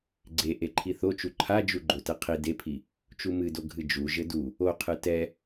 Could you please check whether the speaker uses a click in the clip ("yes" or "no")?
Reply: yes